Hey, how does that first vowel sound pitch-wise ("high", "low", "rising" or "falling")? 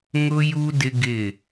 high